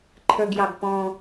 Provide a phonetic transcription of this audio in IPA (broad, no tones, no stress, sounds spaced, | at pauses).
ǃʰ ə˞ ɡ j ɑ ɡ p ɔ̃